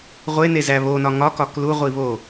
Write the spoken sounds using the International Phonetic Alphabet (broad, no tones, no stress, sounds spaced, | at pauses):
ʁʷ e n e z æ β o n ɒ ŋ ɒ k ɒ k l u ʁʷ i β o